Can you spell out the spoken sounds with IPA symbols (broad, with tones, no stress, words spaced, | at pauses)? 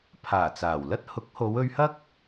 pʰaː˨˩t͡saː˨˩wlɐ˥t̚ hʊ˨˥k̚ho˨˧wɵ˧ɥhɐ˥k̚